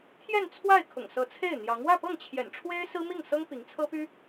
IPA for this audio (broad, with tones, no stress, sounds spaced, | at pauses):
t̪ʰ j ɛ˥˧ n t͡sʰ w a˥˩ ɪ̯ kʰ ʊ̰˨˩ ŋ s ɤ˧˥ t͡sʰ e˥˩ ɪ̯ n̪ j ɑ˧˥ ŋ w ä˥˧ p ɤ˥˩ ŋ t͡ɕʰ j ɛ̰˨˩ n ʈ͡ʂʰ w e˥ ɪ̯ s ɹ̩˥ m i˥˩ ŋ s ɤ˥ ŋ p i˧˥ ŋ t͡sʰ ɤ˥ p y˥